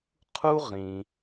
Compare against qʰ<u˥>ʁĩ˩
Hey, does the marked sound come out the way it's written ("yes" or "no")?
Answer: yes